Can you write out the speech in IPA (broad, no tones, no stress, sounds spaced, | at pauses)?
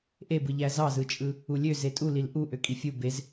ʔ e b ɯ ʎ æ z ɑ z ɯ t͡ʃʼ ɯ | u lʲ ø z e tʼ u l i l ʔ u ʔ ø kʼ i fʲ u b e z